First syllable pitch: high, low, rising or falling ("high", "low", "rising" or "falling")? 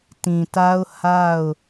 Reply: low